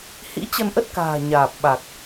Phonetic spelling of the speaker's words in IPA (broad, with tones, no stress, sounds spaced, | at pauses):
h ḭ˧˥ t͡ɕ ə˧ n ʔ ə˦˥ t̚ k a̤ː˨˩ ɲ aː˨˩ p̚ ɓ a˨˩ k̚